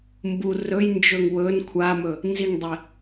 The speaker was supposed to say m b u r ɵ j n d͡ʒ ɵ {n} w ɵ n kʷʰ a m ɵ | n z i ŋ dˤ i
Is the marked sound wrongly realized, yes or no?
yes